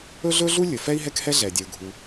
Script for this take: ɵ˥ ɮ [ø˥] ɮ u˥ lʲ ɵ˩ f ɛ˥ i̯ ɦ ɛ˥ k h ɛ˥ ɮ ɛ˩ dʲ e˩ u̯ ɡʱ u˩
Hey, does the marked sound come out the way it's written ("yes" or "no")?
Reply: no